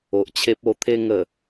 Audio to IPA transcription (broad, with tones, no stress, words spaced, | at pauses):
o˨ʔt͡ɕʰe˦p̚ o˧t̪ʰe˥˧ŋə˨˩